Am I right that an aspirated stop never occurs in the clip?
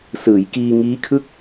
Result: no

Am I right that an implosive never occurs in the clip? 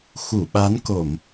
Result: no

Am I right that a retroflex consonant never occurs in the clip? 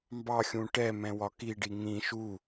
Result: no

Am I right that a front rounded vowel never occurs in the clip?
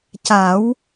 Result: yes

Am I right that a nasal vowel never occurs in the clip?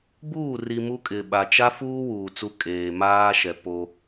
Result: yes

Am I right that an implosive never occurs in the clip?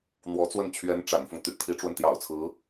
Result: yes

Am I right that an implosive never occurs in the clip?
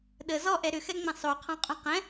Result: no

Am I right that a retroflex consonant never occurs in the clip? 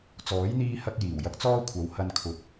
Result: yes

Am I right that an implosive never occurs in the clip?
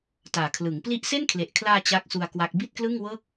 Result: yes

